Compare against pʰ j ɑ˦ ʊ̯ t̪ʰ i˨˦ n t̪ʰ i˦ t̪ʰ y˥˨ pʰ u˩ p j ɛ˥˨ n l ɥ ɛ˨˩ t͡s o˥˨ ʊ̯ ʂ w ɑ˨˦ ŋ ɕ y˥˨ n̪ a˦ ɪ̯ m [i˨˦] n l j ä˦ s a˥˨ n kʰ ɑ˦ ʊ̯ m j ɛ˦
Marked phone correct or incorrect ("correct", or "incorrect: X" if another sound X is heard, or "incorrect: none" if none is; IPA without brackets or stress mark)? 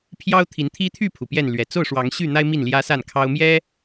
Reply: incorrect: i˥˨